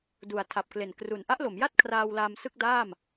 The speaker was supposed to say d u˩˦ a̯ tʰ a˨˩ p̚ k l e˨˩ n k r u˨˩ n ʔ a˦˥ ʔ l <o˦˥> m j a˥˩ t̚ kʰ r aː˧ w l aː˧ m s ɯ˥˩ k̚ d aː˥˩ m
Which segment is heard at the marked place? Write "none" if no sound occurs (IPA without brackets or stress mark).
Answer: o˩˦